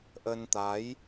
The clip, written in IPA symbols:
ʔ ə˧ n t̪ a˨˦ j

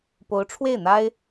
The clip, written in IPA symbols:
p o˧˥ ʊ̯ ʈ͡ʂʰ w e˥˩ ɪ̯ n̪ a˥ ɪ̯

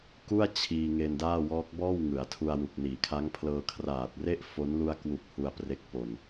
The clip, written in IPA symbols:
k u˥˩ a̯ t͡ɕʰ iː˧ ŋ e˧ n d aː˥˩ w ɔː˦˥ k̚ b ɔː˥˩ w ŋ ɯ˩˦ a̯ tʰ u˧ a̯ w u˨˩ k̚ n iː˩˦ kʰ a˦˥ ŋ pʰ l ɤː˧ kʰ r aː˨˩ t̚ r e˥˩ ʔ f o˦˥ n l u˧ a̯ k w u˨˩ k̚ h u˧ a̯ p r e˦˥ k̚ p o˧ n

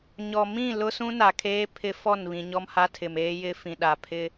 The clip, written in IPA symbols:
ɲ ɔ˨ m ĩ˦˨ l ʊ˦ s ũ˦ n a˨ kʰ eː˦ pʰ ɪ˦ f ɔ˦˨ n β ĩ˨ ɲ ɔ˦ m h a˦ tʰ ɪ˨ m eː˦ j ɪ˦ f ĩ˨ ɗ a˨ pʰ ɪ˦

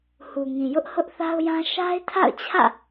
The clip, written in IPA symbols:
h u˨ ŋ ĩ˨ j ʊ˦ ʔ h ʊ˦ ʔ θ a˦ ʊ̯ j ã˦ ʃ a˦ ɪ̯ tʰ a̰˦˨ ʊ̯ t͡ɕʰ ä̰˦˨

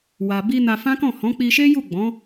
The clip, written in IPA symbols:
w a˨ b i˧ n a˧ f ã˦ k ɔ̃˦˨ h ɔ̃˨˦ k͡p i˧ ʃ e˦ j u˦˨ ɡ͡b ɔ̃˨˦

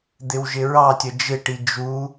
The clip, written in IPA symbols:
d̪ ɪ w ʒ ɪ ɹ ɑ tʲ ə d͡ʒ ɪ ʈ i d͡ʒ u

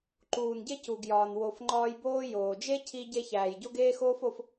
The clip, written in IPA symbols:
ǃ uː˩ n ɟ e˥ c u˩ ɡ j ɒː˩ n w o˨ f ŋ͡ǃ ɒː˦ j b oː˥ j oː˩ d͡ʒ e˥ cʰ i˦ ɟ e˦ ç æː˩ j ɟ o˥ ɡ eː˥ x oː˥ f o˦ f

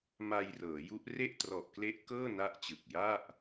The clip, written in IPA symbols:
m a˧ j r ɤː˩˦ j u˦˥ ʔ r e˥˩ ʔ t r ɔ˨˩ ʔ k l e˦˥ ʔ k ɤː˥˩ n a˦˥ ʔ t͡ɕ ɯ˨˩ k̚ j a˥˩ ʔ

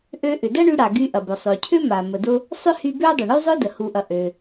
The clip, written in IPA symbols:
ʔ ø˧ ʔ ʏ˩ d ɐ˥ ɳ y˧ ɽ a˩ ɡ y˧ ʔ ɐ˩ b ʊ˩ sˤ ø˩ cʰ ʏ˥ m a˩ m ə˩ d ʊ˧ | sˤ ʏ˥ h y˧ b ø˥ dˤ ʊ˩ ɳ y˥ zˤ ʊ˥ d ə˩ h u˩ ʔ ɐ˩ ʔ ø˩

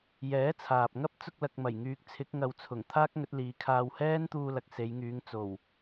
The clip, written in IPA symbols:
j ɛː˨˥ t͡sʰ aː˨ p̚ ŋ ɐ˥ p̚ t͡s ʊ˧ k̚ l ɐ˨ k̚ m ɐ˨˩ j ŋ yː˧ k̚ t͡sʰ ɪ˨˥ k̚ ŋ ɐ˧ w t͡sʰ ʊ˨˩ ŋ t̪ʰ aː˥ k̚ ŋ ɵ˨˥ t̚ l iː˨˧ kʰ aː˧ w h ɛː˥ n t̪ uː˧ l ɐ˨ k̚ s e˨˧ j ŋ yː˨˧ ŋ t͡s o˨˩ w

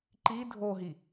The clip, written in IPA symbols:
ǃ i dʱ o ɦ i

